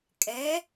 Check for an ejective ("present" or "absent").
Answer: present